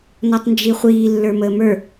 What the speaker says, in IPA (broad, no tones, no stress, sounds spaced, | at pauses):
n ɔ tˤ n d͡ʒ i χʷ iː lː ə˞ m əː m ə˞